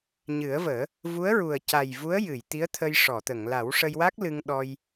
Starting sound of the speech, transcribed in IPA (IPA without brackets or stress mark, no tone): ɲ